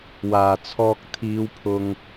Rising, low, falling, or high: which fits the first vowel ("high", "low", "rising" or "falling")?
low